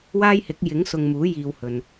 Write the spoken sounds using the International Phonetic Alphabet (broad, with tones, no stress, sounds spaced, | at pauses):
w aː˥ j h ɪ˨˥ k̚ j ɪ˨˥ ŋ s ʊ˧ ŋ m uː˨˥ j iː˧ w h ɵ˨ n